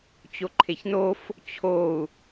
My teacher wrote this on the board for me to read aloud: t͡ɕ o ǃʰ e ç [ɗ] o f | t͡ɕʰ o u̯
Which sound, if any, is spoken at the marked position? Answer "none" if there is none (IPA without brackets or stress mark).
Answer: n